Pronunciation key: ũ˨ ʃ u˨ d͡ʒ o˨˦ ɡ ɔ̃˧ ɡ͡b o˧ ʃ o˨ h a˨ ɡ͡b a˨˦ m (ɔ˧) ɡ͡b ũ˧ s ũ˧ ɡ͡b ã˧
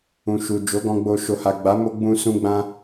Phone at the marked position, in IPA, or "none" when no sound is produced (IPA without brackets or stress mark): o˧